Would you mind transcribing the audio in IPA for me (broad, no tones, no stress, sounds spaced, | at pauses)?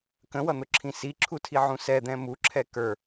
k ə̃ w ʌ n̪ ʊ ǁʰ ĩ s i ǁʰ u tʰ i ʕ ũ s ɛ d̪ ɛ̃ m u ǁʰ ɛ k ə˞